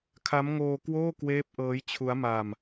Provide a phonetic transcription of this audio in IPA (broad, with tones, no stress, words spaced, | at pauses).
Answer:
kʰa˦˥mŋoː˧kwoː˥˩ kweː˦˥p̚ʔɤː˦˥jt͡ɕʰu˦˥a̯ ma˧m